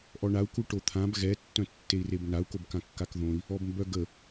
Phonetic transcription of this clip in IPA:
ʔ ɔ ɳ a u̯ k u ʈ o t̪ʰ ã b ɣ ɛ tː œ̃ tː e i̯ r e b n a u̯ k o b k ã kː a k ð õ i̯ | ɔ b m b œ ɡ ə

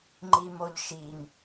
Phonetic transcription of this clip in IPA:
ŋ͡ǃ i m o ʎ ʃ i ŋ

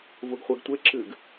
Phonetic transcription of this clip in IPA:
v u ɡ χʷ ɛ ɡ tʷ e ǁ ɨ ɡ

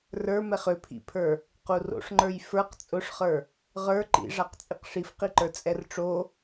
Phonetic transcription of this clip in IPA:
r ə˞ m ɛ χ ʏ pʰ ḭ pʰ ə˞ | q u r o̰ ʂ ŋ͡ǃ ə˞ j f ə˞ q t͡sʼ ʊ ʂ χ ə˞ | ʁ ə˞ ǃ ḭ ʐ a q t͡sʼ i q ʂ i f q i ǃ ə˞ t͡sʼ ɛ r ʈ͡ʂ o

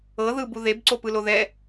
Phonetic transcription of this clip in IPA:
ɤ ð ɯ b u ð e b ǀ o p ɯ l o ð ɛ

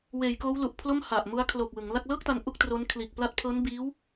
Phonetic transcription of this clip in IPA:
w eː˩˦ j k oː˦˥ w l u˨˩ ʔ pʰ l o˥˩ m h a˨˩ ʔ m u˦˥ a̯ kʰ l o˨˩ k̚ w ɯ˩˦ ŋ l a˥˩ k̚ l ɤː˥˩ k̚ t a˧ n ʔ u˥˩ k̚ t r o˦˥ n kʰ l iː˨˩ k̚ p l a˦˥ t̚ pʰ ɤː˦˥ n b iː˦˥ w

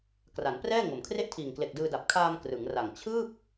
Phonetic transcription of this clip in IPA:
k r a˩˦ n p r ɛː˥˩ ŋ o˩˦ m kʰ r e˥˩ ʔ tʰ iː˨˩ ŋ k l e˨˩ k̚ d ɯː˧ d a˨˩ p̚ kʰ aː˧ m k r ɯ˩˦ ŋ r a˨˩ ŋ t͡ɕʰ ɯː˥˩ p̚

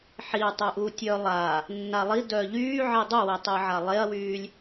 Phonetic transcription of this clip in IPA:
ħ i tˤ ɪ ʔ uː tʲ œ lˠ a | nː a lˠ i d œ ʎ yː ʕ i dˤ u w i tˤ ɪː ʕ a lˠ e ɐ̯ w yː lʲ

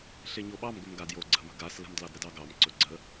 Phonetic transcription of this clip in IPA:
ɬ e ɲ o ɓ ɑ m ɡ ɵ m ɡ a d j o ɡ͡ǀ ə̤ m ə̤ ɡ a s l ə̤ m d l ɑ d ɾ ə d ɑ ɡ ɑ m ǀ ɵ ɡ͡ǀ ə

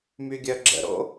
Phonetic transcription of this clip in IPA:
m y ɡʲ œ ɡ͡ǁ ə̰ ɾ o̰

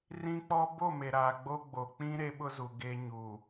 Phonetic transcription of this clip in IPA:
r ĩ˦ k͡p ɔ˦ b o˦˨ m e˨ ɾ aː˨ ɡ͡b o˦ ɡ͡b o˨ k͡p ĩ˦ ɾ e˦ ɓ ʊ˦ z u˨ ɡ e˦ ɲ u˨

